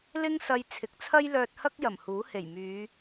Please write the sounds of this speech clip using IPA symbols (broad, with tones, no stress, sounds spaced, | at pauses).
l ɪ˥ ŋ s ɐ˧ j t͡sʰ ɪ˨˥ k̚ t͡sʰ ɐ˥ j l œː˧ t̚ h ɐ˥ k̚ j ɐ˨˩ m h uː˨˥ h e˨˩ j m yː˨˧